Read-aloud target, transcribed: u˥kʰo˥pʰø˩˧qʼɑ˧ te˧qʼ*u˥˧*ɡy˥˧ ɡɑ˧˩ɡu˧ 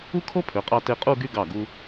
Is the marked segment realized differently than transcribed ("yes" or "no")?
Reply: no